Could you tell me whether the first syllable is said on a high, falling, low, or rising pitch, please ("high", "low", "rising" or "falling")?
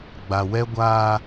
low